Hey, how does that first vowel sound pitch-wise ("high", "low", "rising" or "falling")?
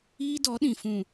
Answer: high